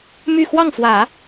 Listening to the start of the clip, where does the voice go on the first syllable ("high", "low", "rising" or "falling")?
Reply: falling